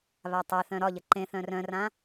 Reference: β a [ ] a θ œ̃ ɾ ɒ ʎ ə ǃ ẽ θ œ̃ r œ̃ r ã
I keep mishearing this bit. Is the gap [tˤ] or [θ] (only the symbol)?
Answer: tˤ